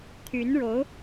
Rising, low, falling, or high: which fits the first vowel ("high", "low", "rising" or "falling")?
rising